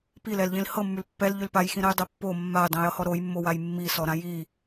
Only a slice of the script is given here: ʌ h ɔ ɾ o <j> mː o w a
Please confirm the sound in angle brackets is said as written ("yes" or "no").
yes